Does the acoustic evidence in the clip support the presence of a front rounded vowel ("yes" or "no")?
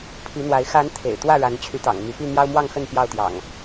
yes